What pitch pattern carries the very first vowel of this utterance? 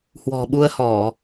low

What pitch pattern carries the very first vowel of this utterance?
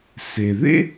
low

